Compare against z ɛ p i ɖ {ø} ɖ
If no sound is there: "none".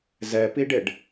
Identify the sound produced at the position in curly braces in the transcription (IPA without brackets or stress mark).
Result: e